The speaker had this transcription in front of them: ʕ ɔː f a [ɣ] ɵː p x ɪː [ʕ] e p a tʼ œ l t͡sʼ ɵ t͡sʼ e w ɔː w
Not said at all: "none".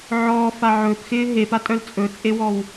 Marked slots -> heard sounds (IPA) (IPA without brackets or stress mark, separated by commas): ʕ, ɦ